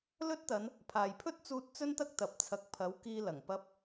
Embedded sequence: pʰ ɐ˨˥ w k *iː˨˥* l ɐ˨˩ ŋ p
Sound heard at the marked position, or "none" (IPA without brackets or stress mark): iː˧